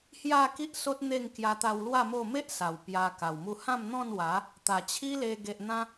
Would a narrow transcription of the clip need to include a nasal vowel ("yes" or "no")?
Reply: yes